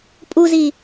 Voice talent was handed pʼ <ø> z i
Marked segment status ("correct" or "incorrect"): incorrect